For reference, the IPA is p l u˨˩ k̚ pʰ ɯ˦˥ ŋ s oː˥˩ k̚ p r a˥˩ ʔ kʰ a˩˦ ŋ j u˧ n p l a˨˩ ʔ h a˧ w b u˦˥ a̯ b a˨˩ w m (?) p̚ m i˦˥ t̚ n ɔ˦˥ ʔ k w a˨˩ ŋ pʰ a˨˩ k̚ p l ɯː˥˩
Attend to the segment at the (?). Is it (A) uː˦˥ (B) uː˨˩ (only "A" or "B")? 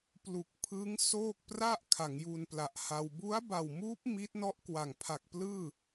A